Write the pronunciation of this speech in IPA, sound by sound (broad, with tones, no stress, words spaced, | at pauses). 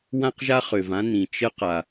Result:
wã˥qʒa˥ χø˩vã˥ nĩ˩ t͡ʃə˥ qa˩